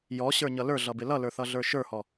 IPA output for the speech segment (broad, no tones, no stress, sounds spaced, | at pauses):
j ɔ ɕ ə˞ ɲ ʌ l ə˞ ɮ ʌ b ɪ l ʌ l ə˞ θ ʌ ɮ ə˞ ʃ ə˞ h ɔ